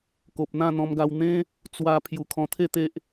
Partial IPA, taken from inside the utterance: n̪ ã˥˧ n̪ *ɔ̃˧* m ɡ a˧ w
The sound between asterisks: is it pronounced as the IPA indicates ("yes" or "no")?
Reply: yes